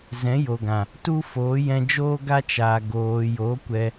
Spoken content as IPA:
z ɛ̃˨˦ j o˨ ɡ ã˨ | t u˦ f oː˨˦ j ɛ̃˧ d͡ʒ oː˦ ɡ a˦ t͡ʃ aː˨ ɡ oː˨ j o˨˦ kʷ ɛ˧

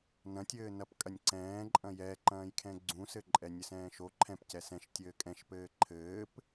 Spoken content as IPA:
n ɐ̃ tʲ ɘː n ɐ p kʼ ɐ nʲ ǀ ɛ̃ː ǃʼ ɐ̃ j ɛ ǃ ɐ̃ː j kʰ ɛ̃ ɡ͡ǀ ũ s ɘ ǃʼ ɛ nʲ ɘ s ɛ̃ː ʃ o ǃʰ ɛ̃ p c ɛ s ɛ̃ ʃ tʲ ɘː kʼ ɛ̃ ʃ p ɘː ǃʰ ɘː p

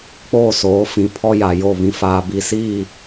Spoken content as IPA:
k͡p oː˦˨ s oː˨˦ f ĩ˨ pʰ ɔ˦ j a˨ j o˦˨ β ĩ˨ f aː˨ b i˨ s iː˦˨

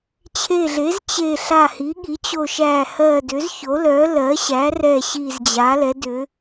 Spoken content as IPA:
t͡ɕʰ e˧˩ ɮ e˩˥ z t͡ɕ e˧˩ ɬ a˧˩ h i˩˥ ɠ i˩˥ t͡ɕ o˧˩ ʃ æ˧˩ h ɜ˧˩ d ʏ˩˥ z ç o˩˥ l œ˩˥ l ɜ˩˥ ɕ æ˩˥ r ɛ˧˩ ɕ i˧˩ z d͡ʑ a˩˥ l ɛ˩˥ d ʏ˩˥

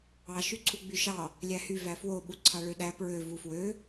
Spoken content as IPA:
ɑ ʃ y ǀʰ u ɡ͡b y ʃ ɑ | lʲ æ h y v æ f w o ɓ u ǀʰ ɑ ɭ ø ɗ æ p ɹ ø v u f w ø

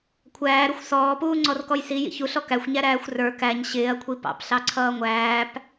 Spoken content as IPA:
kʷʰ æː ɾ ʊ xʷ s ɔː p uː ŋ͡ǀ ɔ r k ɔ j s i j ḭ ç u ɬ ɔ k æ xʷ ɲ æ ɾ æː xʷ r ə˞ k æ ɲ ɕ ɪː ɐ̯ kʷʰ i p ɑ̰ p ɬ ɑ ǀʰ ʌː ŋʷ æː p

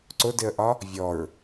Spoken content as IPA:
ǀ ʊ d ɪ ə̯ ʔ ɒ | vʲ ɔ ɹ

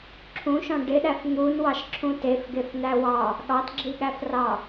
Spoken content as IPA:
ǁʰ ũ ʃ ɔ̃ ɖ ɪ ɗ æ f n̪ u n w ɑ ʃ ǁʰ ũ t e f ɡ e f n̪ æ w ɑ | ɠ ɑ t ɡ͡ǁ i ɠ æ f r ɑ

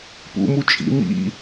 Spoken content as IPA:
p ṵ m u t͡ʃʼ ḭ m ḭ

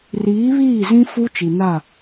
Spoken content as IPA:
r iː˨˦ β iː˦˨ z ĩ˦ f u˦ t͡ʃ i˨ n a˦˨

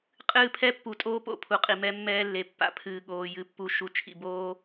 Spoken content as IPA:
qʼ ɨː˦˨ pʰ ɛ˦ pː u˨ tʼ oː˦ p o̰˨ pʰ u˨ qʼ i˨ m ɛ˦ mː ɛː˦ lː e˨ pː a̰˦ pʰ ɨː˨ ɠ oː˨ j ɨ˨ pː u˨ ʃ u˨ t͡ʃʰ ḭ˨ b oː˦

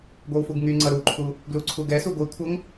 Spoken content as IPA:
ɡʷ ɛ w f u ɡ ŋ y ŋ͡ǀ ʌ ɾ u ǃʰ u | ɡ l u ǀʰ u ɡ ɛ s u ɡʷ i kʷʰ ʌ ŋ

